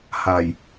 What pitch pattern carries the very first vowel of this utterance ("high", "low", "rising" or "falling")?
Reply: low